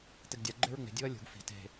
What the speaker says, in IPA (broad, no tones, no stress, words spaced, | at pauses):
teɡdʲa ɡ͡ǃeɹŋ͡me̤ dʲuɐ̯lʲṳɡ fi̤ te̤